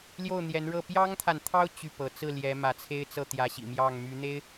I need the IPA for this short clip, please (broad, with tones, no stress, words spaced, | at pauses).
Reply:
ljo˥˩ʊ̯n̪jɛ˧˥nɻɤ˥˩ pjɑ˥ŋt̪ʰa˨nt̪ʰɑ˥ʊ̯ t͡ɕy˥˩pɤ˧˥ t͡sɹ̩˥˩ljɛ˧˥ mä˧˥t͡sʰe˥ɪ̯t͡sɤ˥˩ t̪jä˧˥ɕḭ˨˩ mjɑ˥˩ŋmy˧˥ n̪e˥ɪ̯